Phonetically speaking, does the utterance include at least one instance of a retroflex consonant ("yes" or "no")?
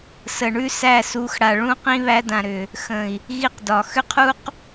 yes